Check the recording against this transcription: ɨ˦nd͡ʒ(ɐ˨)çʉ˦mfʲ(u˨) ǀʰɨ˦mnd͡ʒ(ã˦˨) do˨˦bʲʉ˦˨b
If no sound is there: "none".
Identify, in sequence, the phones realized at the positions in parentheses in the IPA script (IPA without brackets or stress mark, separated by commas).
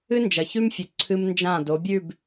ɐ˨, u˨, ã˦˨